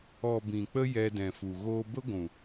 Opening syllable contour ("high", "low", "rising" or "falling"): low